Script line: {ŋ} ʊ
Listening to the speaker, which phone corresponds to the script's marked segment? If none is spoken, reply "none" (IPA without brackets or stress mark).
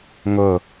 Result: ŋ